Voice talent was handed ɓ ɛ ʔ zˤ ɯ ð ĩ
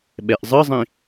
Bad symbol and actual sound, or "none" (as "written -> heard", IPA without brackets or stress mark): ð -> zˤ